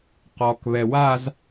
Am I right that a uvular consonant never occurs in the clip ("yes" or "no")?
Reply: no